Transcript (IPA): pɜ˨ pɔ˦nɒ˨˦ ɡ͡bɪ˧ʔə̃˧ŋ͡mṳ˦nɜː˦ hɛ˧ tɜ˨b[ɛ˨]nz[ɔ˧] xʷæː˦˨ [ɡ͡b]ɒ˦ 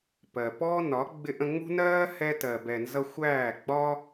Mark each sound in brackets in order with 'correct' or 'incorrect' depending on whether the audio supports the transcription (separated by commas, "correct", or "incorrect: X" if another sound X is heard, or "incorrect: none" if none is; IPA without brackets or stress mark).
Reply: correct, incorrect: ʌ˧, correct